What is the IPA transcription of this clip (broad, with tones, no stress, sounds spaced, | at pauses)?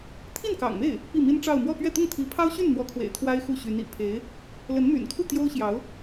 t̪ʰ i˥˩ n k ɑ̰˨˩ ŋ m e˥˩ ɪ̯ | p i˥˩ m i˥ n ʈ͡ʂ ɑ˥˧ ʊ̯ m w ɔ˥˧ p ɥ ɛ˥˧ t̪ ʊ˥˩ ŋ t̪ʰ i˧˥ pʰ ɑ˥ ʊ̯ ɕ y˥˩ n n̪ w ɔ˧˥ kʰ w ḛ˨˩ ɪ̯ t̪ʰ w a˥ ɪ̯ x u˥˩ ɕ y˧˥ n ḭ˨˩ pʰ e˧˥ ɪ̯ | l ə˧˥ n m y̰˨˩ n kʰ u˥˩ t̪ j o˥ ʊ̯ ɕ j ɑ˧˥ ʊ̯